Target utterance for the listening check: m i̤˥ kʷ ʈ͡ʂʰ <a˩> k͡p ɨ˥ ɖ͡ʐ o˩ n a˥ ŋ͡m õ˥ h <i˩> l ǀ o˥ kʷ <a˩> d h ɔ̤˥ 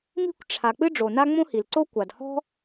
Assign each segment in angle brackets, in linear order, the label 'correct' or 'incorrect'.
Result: correct, correct, correct

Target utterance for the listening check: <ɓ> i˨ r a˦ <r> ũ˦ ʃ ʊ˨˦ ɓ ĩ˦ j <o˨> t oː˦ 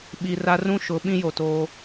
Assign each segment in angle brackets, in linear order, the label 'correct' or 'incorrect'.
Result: correct, correct, correct

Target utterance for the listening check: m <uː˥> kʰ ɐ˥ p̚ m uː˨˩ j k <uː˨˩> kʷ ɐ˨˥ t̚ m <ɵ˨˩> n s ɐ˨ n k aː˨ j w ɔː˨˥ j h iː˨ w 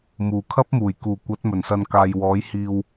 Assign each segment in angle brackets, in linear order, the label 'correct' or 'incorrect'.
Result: incorrect: uː˨˩, correct, correct

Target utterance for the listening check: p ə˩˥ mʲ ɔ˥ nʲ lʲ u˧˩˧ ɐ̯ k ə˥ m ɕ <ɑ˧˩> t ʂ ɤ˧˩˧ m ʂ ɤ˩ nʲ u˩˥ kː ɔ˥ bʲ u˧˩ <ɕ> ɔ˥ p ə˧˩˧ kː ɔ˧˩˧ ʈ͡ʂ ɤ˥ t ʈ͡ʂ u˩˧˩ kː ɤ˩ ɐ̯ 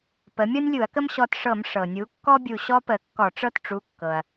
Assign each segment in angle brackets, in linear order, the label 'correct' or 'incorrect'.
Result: incorrect: ɔ˧˩, correct

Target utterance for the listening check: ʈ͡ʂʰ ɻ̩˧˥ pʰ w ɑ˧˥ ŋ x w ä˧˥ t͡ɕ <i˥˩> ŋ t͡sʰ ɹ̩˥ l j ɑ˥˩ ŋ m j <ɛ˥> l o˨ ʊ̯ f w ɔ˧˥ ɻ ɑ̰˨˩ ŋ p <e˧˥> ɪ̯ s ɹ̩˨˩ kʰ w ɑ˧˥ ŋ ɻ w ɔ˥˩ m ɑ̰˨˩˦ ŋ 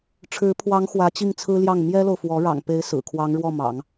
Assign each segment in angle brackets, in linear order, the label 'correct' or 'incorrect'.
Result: correct, correct, correct

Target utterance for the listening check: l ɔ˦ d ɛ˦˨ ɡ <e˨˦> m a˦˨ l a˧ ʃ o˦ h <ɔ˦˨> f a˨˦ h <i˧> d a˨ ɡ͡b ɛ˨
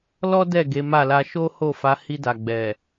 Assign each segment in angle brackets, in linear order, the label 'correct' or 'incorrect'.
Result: correct, incorrect: o˦˨, correct

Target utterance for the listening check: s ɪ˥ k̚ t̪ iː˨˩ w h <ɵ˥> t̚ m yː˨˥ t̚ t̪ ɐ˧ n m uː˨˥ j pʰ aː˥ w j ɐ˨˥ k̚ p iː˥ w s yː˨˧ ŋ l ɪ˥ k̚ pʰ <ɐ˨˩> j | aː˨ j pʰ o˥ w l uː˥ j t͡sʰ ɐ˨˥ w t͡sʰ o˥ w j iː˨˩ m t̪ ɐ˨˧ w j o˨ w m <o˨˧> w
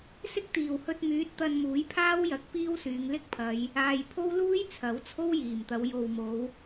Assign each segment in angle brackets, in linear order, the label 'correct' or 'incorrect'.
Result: incorrect: ɵ˧, incorrect: ɐ˨˧, correct

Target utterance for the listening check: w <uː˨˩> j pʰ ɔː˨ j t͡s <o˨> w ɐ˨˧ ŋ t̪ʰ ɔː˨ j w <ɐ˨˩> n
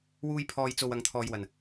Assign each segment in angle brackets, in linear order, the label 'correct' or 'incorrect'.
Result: incorrect: uː˧, correct, correct

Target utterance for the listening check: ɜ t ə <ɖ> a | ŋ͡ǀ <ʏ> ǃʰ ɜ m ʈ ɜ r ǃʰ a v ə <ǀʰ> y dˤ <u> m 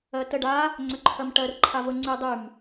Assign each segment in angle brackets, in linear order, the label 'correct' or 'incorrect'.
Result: correct, correct, incorrect: ŋ͡ǀ, incorrect: y

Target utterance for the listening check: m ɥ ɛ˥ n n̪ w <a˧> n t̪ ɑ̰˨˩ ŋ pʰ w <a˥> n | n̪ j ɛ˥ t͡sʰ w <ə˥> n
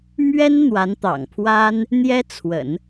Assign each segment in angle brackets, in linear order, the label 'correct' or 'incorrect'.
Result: incorrect: a˧˥, correct, incorrect: ə̰˨˩˦

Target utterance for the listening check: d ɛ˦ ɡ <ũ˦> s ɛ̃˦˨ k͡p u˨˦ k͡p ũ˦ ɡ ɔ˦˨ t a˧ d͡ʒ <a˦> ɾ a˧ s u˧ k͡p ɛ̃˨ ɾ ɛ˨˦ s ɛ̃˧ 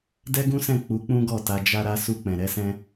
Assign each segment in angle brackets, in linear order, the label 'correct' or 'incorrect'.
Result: correct, correct

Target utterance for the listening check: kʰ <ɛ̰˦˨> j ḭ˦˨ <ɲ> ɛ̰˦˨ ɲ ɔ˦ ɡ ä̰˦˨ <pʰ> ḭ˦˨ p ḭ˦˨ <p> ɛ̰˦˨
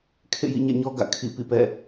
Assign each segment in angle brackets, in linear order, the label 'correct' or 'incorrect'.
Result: incorrect: ḛ˦˨, correct, incorrect: kʰ, correct

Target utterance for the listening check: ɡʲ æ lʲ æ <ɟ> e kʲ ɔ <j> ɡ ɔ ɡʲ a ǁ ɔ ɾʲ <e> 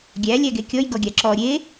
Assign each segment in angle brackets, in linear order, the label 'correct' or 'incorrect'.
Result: incorrect: ɡ, correct, correct

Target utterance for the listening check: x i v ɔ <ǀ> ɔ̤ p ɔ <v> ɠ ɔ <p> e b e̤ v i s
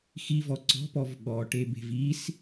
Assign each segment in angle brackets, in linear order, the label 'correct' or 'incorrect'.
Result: correct, correct, incorrect: ʈ

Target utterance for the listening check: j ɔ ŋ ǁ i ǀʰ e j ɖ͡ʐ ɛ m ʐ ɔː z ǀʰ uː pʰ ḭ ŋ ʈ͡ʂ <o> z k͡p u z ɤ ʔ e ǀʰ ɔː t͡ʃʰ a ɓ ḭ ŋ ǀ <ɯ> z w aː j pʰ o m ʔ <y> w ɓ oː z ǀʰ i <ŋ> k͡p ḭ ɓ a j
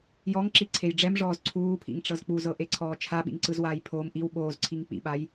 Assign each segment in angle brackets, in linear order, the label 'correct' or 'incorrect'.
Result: incorrect: ɤ, correct, incorrect: i, correct

